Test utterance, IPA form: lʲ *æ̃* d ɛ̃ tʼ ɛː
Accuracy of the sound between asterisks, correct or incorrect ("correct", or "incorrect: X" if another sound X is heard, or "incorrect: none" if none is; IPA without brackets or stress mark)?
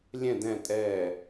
incorrect: ɛ̃